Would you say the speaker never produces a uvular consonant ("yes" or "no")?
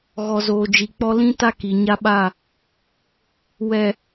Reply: yes